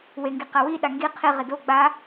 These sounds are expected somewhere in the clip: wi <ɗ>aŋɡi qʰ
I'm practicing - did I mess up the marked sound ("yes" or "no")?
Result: no